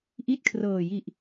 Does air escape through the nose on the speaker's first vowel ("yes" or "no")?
no